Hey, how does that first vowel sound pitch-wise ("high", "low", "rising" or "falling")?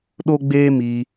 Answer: high